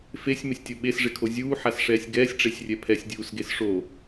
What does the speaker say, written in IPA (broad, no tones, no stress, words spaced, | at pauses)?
fesʲ mɪsʲtʲoɓes ʐɪkʰozʲuː ħasʂɛːsʲɡɛːsʲ ʈ͡ʂesʲrʲɛpʰɛsʲ dʲuːsɡesʂo